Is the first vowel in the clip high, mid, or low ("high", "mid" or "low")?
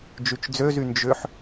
high